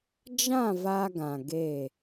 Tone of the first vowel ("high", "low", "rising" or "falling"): falling